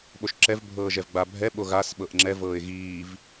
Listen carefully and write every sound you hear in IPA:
ɓ o ʃ ǁ ɛ v bʱ ɤː ʒ ɛ v ɡ͡b a bʱ ɛ ɓ o ɣ a s ɓ ɤ ʔ ŋ͡ǁ ɛ v ɤː ɪ̯ ɣ iː v

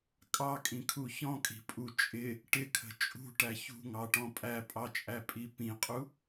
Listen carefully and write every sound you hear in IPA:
kʼ ɑ kʼ ĩ kʰ u ç ɔ̃ kʼ i̤ pʼ u t͡ʃʼ ɪ | ʈ ɪ kʰ ə̤ t͡ʃʼ ṳ ʈ æ ç ṳ ŋ ɑ ʈ ɔ̃ pʼ æ pʼ ɑ t͡ʃʼ æ pʼ i p ĩ qʼ u

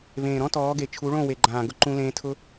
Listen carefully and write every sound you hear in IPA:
β ẽː˨ ɾ ɔ̃˦ t ɔː˨˦ ɡ e˨ t͡ʃʰ u˨˦ ɭ õ˦˨ w e˨ ɡ͡ǃ ãː˨ ɡ ʊ˧ ǃ ũ˧ l ẽː˧ tʰ ʊ˦

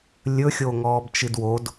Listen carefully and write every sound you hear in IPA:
lʲ ɵ xʲ o ŋ ɔː b t͡ʃ ɨ d w o d

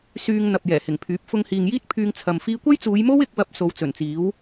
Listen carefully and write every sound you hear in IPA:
s yː˧ ŋ n̪ ɐ˨ p̚ j ɛː˨˩ h ɪ˨˩ ŋ pʰ yː˨˥ p̚ f ʊ˧ ŋ h iː˨ ŋ j iː˥ t̚ pʰ yː˧ ŋ t͡sʰ ɐ˨ m f iː˧ kʷ ɐ˥ j t͡s uː˨˧ j m o˥ w ɪ˥ k̚ w ɐ˥ p̚ s o˨˧ w t͡s ɵ˨˩ n t͡s iː˨˥ w

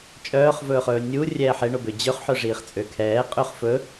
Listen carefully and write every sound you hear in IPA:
t͡ʃʼ œː χ v ɵː χ ɵː nʲ u rʲ ɛː ħ e ɳ o b ø d͡ʑ ø χ ħ œ ʐ iː χ t͡sʼ ø kʰ ɛː qʼ ø χ f ɵ

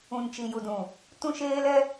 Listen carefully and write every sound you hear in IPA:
ũ˨ n t͡ʃ i˨ j u˨ d ũ˨ | t ũ˧ ʃ eː˧ l ɛ˧

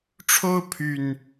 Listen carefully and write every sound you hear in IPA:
ʈ͡ʂʰ o˦ ʊ̯ pʰ y˨˩ n

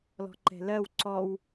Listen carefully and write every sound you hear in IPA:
l ɔ̤ ǃ ɛ̤ l ɜ w ǀ ɔ w

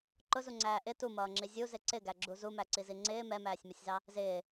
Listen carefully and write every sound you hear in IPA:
ǃ ʊ z u ŋ͡ǀ æː ʔ ɪ t u m ʌː ŋ͡ǁ i zʲ u z ɪ ǀ ɪ ɡ æ ɡ͡ǁ u z u m æ ǀ i z i ŋ͡ǀ ɪː m ɛ m æː sʲ m ɪ sʲ z ɑ | z ɪː

